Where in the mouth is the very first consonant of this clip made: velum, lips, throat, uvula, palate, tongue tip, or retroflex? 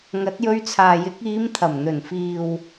velum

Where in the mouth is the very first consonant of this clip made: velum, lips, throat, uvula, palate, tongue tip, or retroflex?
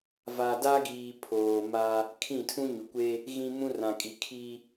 lips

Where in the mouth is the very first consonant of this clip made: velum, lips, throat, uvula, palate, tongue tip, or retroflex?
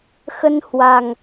velum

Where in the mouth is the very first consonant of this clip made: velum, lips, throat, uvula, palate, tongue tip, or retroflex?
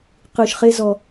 uvula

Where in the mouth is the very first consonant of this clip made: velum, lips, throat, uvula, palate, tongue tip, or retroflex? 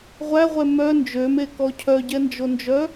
uvula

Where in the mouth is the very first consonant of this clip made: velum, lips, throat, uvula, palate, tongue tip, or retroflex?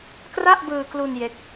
velum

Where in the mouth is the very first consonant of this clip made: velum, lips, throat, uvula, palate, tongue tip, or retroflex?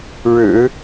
retroflex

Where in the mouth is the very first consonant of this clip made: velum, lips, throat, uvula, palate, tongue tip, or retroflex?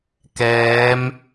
velum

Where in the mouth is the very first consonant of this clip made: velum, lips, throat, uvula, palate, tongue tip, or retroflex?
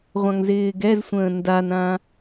uvula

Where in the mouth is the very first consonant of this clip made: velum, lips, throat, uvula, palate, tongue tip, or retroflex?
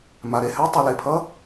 lips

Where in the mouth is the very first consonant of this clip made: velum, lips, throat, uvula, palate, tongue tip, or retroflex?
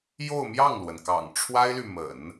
palate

